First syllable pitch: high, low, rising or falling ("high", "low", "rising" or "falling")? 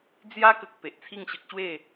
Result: high